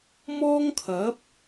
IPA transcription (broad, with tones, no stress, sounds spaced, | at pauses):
m ɔː˥ ŋ kʰ ɐ˨˥ p̚